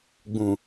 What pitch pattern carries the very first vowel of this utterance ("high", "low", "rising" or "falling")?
low